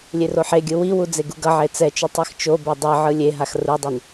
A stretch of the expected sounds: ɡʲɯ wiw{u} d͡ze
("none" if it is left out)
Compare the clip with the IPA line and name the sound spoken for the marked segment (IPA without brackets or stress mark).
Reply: u